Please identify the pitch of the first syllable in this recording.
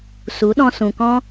rising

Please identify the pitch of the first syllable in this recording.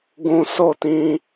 high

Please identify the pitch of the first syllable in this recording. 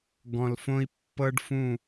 low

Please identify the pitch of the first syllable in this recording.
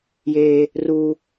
high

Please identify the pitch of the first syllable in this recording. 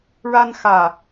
high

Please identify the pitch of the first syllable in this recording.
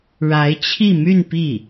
rising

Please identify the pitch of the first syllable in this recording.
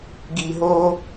low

